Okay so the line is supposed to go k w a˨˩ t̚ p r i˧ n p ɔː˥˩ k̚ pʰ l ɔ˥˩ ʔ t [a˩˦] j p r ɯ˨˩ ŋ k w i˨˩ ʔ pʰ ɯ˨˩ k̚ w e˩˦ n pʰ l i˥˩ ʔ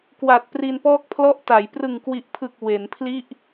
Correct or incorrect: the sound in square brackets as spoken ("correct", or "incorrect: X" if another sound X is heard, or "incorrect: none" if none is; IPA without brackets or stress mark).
correct